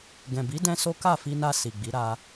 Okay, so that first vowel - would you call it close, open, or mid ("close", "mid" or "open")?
mid